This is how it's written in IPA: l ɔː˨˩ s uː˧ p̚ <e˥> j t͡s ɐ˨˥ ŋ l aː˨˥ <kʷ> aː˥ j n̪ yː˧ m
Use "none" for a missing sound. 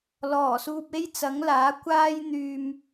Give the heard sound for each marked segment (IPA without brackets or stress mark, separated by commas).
e˥, kʷ